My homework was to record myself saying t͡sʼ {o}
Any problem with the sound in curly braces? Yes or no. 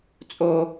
no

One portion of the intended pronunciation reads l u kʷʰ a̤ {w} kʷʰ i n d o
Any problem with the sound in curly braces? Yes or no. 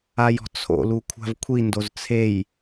yes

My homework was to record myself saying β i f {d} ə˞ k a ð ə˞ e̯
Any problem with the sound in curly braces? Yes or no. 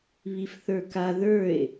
yes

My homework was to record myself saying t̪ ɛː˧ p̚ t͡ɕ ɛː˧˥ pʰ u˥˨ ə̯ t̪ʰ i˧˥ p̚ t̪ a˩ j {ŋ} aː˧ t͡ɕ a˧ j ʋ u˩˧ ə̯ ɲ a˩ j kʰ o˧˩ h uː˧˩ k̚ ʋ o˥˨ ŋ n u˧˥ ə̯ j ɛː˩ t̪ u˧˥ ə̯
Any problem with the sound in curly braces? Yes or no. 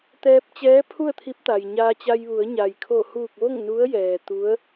yes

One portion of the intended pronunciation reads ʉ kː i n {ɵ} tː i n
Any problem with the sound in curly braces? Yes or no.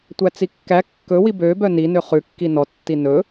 yes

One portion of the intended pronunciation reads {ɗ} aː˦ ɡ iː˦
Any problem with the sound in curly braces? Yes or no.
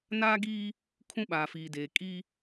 yes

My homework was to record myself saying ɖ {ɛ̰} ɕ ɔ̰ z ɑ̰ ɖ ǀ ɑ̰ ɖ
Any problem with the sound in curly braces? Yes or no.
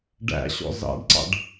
yes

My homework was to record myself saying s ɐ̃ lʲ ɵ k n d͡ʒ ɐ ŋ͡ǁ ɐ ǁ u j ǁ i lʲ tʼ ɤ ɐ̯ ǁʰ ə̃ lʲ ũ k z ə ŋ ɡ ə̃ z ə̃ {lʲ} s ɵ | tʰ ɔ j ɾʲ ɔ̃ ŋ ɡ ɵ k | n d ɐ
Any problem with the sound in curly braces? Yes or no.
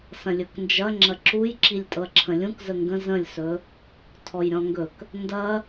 no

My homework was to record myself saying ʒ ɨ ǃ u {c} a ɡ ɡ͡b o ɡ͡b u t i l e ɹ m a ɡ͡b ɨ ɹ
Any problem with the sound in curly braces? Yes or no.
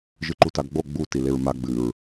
yes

